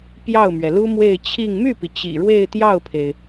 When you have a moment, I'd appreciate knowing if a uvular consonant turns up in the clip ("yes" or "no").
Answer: no